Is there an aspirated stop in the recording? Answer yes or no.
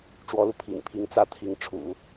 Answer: yes